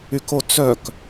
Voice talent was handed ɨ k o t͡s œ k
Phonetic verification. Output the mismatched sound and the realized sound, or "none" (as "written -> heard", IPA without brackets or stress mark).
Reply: ɨ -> y